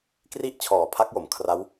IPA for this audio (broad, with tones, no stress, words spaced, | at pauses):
kri˥˩ʔ t͡ɕʰɔː˨˩pʰa˦˥k̚jo˩˦m kʰra˦˥w